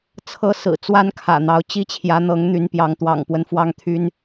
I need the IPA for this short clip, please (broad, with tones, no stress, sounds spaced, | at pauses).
t͡sʰ ɤ˦ s ɹ̩˨˩ t͡s w a˦ n kʰ ä̰˨˩ n̪ ɑ˨˦ ʊ̯ t͡ɕ i˦ t͡ɕʰ j ä˨˦ n̪ ɤ˨˦ ŋ n̪ y˨˦ n p j ɑ˨˦ ŋ t̪ w ɑ̰˨˩ ŋ p w ə˦ n f w ɑ˦ ŋ t̪ʰ y˦ n